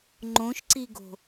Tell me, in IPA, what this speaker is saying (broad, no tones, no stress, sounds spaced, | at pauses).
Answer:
ŋ͡ǃ õ ʃ ǀ i ɡ o̤